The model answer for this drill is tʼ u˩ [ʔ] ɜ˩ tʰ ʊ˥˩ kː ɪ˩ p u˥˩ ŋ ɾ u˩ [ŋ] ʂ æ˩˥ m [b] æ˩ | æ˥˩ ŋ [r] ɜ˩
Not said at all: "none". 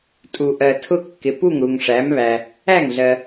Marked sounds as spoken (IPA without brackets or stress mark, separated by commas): ʔ, ŋ, β, ɮ